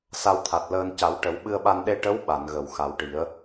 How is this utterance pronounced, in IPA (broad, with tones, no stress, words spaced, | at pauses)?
sa˧wt̪ʰa˨˩t̚ ləː˧n ca˨˩˦wʈə˨˩˦w ɓɨ˧ə̯ɓa˧n ɗe˧ʈə˧˥w ɓa˨˩˨n ɣə˨˩˨wxa˨˩˦wʈi˨˩˦ə̯